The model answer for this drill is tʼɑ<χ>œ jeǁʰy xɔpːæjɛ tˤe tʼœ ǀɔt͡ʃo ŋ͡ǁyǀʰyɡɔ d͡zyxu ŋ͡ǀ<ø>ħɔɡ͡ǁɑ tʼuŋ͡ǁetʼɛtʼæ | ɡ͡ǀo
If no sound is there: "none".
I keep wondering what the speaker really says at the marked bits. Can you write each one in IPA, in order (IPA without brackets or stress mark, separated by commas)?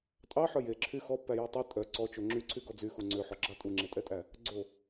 ħ, ø